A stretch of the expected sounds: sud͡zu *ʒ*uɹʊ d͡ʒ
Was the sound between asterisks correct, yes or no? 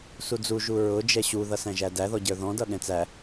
yes